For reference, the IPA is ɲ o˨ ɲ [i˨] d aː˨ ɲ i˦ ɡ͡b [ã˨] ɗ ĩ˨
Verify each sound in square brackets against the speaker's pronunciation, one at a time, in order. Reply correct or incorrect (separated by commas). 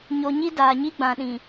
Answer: incorrect, correct